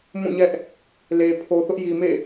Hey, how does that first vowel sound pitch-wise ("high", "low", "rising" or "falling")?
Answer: falling